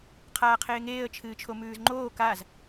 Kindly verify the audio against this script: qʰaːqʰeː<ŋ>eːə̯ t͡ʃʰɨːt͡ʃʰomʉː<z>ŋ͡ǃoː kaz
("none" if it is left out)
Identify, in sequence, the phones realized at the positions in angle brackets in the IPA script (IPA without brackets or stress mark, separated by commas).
ŋ, z